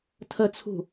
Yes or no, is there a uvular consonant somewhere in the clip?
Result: no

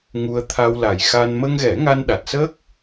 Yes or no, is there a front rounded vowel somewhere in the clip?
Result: no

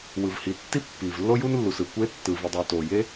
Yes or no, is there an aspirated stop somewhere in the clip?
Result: no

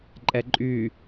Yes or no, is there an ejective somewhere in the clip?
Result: yes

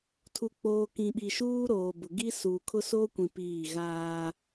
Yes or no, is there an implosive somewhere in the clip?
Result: yes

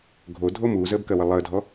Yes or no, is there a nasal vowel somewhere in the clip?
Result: no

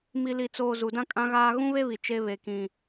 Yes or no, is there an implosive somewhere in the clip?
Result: no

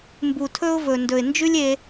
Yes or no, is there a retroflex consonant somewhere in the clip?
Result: no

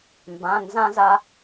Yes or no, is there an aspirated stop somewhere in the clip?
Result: no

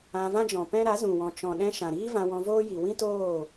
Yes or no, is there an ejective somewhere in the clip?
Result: no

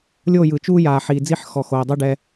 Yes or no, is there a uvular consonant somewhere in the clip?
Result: no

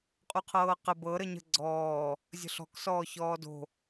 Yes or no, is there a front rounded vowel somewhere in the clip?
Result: no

